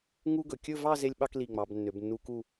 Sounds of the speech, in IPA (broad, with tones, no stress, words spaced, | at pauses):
ŋu˥ɡɵ˩˧ kʲɵ˥˧vɑ˥˧ ze˥lʲɓɑ˥k li˧˩ ŋ͡mɑ˩˧bnːø˩˧bnːu˧ku˥˧